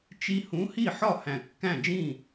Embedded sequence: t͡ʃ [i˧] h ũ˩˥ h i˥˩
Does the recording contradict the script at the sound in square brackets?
no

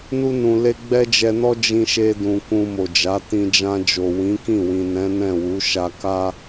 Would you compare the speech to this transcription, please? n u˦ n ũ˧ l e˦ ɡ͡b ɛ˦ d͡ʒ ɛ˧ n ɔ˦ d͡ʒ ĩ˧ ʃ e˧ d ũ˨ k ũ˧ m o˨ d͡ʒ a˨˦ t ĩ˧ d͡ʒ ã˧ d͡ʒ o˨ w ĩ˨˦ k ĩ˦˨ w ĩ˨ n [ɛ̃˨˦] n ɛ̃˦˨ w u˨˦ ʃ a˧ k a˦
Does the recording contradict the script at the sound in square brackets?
no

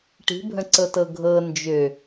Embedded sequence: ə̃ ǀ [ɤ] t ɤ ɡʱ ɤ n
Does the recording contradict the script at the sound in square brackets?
no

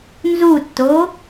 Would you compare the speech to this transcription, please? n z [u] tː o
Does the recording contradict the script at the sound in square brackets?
no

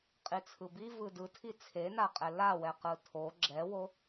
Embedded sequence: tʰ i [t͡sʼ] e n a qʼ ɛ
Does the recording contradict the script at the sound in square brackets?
yes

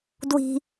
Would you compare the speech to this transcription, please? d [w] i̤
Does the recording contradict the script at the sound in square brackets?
no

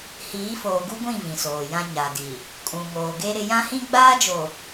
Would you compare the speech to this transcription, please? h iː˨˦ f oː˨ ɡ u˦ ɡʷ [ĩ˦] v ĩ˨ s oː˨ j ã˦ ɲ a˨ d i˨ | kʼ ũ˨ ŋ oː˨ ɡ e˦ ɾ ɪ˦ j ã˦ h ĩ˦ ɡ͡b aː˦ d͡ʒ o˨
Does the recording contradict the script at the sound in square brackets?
yes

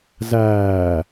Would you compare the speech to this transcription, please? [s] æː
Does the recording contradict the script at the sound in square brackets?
yes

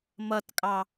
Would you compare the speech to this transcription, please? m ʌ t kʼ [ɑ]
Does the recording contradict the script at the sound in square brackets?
no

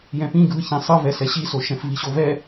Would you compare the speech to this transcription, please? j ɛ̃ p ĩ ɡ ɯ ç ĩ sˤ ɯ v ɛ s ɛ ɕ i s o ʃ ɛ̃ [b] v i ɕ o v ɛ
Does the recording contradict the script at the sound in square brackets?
yes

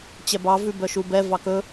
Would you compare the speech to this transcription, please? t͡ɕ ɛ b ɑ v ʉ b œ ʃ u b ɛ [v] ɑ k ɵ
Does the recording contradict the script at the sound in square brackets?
no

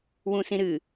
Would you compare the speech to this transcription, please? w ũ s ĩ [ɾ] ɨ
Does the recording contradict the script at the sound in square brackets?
no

